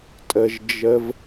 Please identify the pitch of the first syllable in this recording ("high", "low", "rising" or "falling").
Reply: low